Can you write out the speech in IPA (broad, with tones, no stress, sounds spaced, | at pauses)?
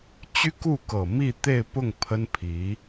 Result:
t͡ɕ y˥ k u˥˩ k ɤ˨˩ m i˥˧ t̪ e˥˧ ɪ̯ p ʊ˥˩ ŋ pʰ ə˥ n pʰ i˧˥